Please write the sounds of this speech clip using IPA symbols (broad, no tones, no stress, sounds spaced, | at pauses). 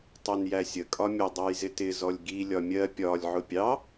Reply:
tˤ ɛ n j æ sʲ ə kʼ ɒ mʲ ʊ dˤ ɑ j z ɪ t ɪ z ɔ lʲ ɡ i lʲ ɒ mʲ ɜ pʲ ɒ lʲ ʕ ʊ pʲ ɑ